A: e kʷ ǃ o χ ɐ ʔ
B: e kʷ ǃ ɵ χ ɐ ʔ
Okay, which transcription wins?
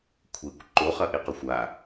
A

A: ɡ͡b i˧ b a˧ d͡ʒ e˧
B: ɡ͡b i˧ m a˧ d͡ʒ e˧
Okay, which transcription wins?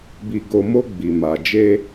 B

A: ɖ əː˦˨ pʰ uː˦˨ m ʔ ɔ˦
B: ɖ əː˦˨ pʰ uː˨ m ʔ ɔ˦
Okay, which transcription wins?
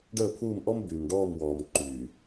A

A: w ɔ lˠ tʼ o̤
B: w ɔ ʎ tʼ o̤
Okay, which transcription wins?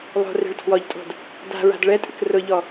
B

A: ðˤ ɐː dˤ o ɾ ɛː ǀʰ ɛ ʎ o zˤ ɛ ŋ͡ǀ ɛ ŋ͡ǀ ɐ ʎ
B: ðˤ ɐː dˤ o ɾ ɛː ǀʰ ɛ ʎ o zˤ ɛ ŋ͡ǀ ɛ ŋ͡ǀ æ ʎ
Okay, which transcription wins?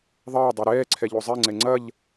A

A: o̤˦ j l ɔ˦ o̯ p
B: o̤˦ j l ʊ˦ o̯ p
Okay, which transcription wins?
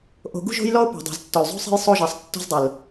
A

